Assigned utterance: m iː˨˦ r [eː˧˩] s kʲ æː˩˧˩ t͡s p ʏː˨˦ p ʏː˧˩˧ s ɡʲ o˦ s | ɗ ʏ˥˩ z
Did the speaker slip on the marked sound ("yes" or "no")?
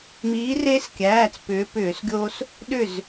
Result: yes